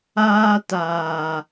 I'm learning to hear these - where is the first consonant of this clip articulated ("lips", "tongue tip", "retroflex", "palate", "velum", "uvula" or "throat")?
tongue tip